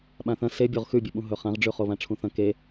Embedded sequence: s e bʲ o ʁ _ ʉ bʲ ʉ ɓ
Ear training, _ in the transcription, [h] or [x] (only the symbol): x